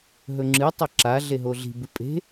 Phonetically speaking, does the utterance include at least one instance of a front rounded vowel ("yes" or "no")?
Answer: no